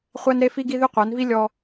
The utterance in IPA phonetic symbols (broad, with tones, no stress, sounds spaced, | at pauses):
χʷ æ˦ n ɾ e˦ f i˦ ɡ i˦ ð y˦ qʷ æ˨˦ n v i˦ lʲ ɔ˦